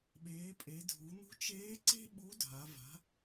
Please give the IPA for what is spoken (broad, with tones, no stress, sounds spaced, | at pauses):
ɓ eː˩˧ pʼ e˩˧ dʱ u˩˧ n̪ ṳ˧˥ t͡ʃ eː˧˥ ǀ e̤˥ ɓ u˧˥ dʱ a˩˧ v a̤˩˧